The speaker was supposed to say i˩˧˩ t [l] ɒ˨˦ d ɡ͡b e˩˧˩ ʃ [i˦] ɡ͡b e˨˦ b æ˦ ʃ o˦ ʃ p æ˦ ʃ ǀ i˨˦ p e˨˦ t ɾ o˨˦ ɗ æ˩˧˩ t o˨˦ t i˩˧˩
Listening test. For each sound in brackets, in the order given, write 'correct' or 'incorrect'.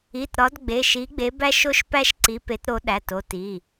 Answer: incorrect: ɾ, incorrect: i˨˦

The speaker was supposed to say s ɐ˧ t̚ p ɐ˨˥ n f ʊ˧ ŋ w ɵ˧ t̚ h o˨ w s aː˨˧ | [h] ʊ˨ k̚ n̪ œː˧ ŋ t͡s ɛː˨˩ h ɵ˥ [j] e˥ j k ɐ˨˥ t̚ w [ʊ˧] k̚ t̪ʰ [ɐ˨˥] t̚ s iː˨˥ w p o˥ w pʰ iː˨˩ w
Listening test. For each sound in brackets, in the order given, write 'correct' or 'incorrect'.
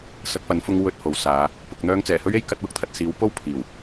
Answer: incorrect: p, incorrect: ɥ, correct, incorrect: ɐ˨

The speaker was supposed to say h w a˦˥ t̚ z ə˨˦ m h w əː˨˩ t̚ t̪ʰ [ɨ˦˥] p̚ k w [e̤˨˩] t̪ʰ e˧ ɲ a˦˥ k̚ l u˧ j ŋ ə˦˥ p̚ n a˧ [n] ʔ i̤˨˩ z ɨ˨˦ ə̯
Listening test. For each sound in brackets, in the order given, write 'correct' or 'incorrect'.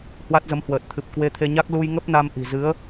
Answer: incorrect: ɨ˨˩, incorrect: e˧, incorrect: m

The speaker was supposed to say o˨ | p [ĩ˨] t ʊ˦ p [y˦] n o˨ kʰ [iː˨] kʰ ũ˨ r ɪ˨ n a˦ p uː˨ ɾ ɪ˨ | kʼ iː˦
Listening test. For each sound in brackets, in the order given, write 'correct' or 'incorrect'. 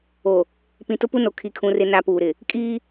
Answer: correct, incorrect: u˦, incorrect: i˨

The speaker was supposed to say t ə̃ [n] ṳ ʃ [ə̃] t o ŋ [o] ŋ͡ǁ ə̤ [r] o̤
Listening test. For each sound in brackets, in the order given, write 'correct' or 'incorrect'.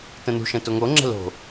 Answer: correct, correct, correct, incorrect: l

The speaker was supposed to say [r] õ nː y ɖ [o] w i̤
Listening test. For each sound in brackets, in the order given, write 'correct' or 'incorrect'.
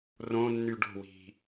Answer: correct, incorrect: o̤

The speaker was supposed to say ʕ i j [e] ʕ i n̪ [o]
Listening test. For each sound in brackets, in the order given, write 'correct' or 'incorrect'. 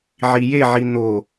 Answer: correct, correct

